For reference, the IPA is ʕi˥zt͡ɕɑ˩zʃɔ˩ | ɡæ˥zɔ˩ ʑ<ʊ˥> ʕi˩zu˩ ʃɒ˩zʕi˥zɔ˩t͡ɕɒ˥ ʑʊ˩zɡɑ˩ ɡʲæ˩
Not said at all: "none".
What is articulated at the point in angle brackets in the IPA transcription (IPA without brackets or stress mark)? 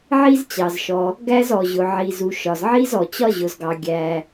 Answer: ʊ˩